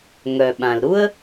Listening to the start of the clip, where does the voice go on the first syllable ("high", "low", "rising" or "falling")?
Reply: low